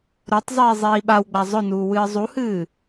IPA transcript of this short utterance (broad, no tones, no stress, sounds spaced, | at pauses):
ɾ o tˤ zˤ iː zˤ iː ɓ a w ɡ͡b a zˤ ɵ n uː w ɨː zˤ u h ɨː